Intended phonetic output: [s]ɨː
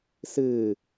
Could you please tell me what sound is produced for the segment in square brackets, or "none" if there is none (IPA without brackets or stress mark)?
s